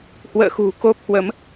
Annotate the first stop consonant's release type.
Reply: plain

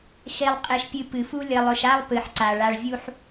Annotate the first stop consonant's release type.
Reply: ejective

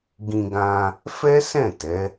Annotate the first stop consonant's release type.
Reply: plain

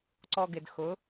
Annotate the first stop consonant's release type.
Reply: click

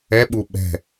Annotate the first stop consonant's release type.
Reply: implosive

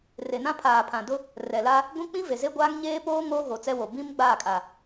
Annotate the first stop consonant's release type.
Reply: aspirated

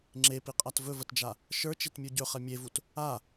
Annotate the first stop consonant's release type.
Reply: click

